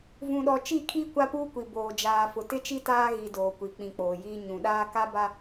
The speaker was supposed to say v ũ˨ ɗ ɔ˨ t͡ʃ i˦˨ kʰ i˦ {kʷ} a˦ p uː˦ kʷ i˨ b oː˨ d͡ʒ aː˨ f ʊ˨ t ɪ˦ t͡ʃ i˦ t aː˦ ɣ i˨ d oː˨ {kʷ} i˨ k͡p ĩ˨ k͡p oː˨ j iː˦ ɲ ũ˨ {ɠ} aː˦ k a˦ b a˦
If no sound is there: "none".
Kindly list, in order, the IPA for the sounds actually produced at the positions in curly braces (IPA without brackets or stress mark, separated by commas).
kʷ, kʷ, ɗ